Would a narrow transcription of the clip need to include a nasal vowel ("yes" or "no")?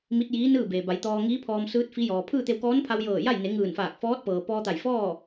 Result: no